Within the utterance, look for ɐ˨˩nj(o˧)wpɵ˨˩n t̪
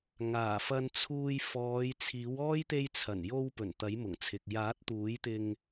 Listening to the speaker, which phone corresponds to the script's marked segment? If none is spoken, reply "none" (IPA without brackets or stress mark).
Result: o˧